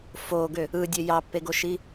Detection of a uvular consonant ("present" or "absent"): absent